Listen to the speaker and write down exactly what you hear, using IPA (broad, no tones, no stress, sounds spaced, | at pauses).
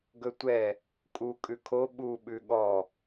ɡ ɵ tʷ ɛ | kʼ u kʼ ʉ kʰ o ɓ u ɓ ʉ ɠ ɔ